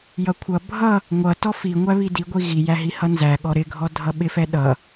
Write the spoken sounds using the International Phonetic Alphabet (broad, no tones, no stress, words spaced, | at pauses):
jʌkʷʰʌ bʱʌ | ŋʷʌ tɔfi ŋʷæβidi ɡʷiɣi jæɦihʌnzæ ɠɔɾɪɡʱɔ dʱʌɓɪfɛ ɗʌ